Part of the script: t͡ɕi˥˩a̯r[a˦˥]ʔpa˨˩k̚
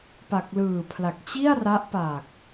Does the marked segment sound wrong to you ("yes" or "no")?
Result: no